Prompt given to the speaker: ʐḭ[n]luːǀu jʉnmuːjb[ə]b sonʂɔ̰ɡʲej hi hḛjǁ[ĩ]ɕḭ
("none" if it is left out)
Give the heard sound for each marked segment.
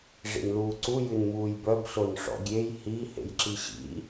n, œ, i

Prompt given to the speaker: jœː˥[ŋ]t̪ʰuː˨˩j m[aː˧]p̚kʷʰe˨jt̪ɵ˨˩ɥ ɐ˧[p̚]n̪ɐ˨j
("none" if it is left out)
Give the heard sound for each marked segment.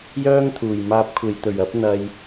ŋ, aː˧, p̚

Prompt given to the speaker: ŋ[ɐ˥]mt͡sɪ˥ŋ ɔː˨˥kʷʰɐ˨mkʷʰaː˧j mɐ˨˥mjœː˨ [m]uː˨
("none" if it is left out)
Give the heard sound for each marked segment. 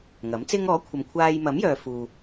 ɐ˨˥, f

